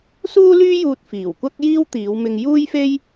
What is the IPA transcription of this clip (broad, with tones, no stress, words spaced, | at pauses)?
suː˥lyː˥juː˧t̚ fiː˨˩wkʷɐ˥k̚ jiː˥wt̪iː˨˧wmɪ˧ŋ juː˥jfe˥j